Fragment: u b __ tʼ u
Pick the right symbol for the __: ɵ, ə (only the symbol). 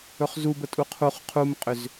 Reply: ə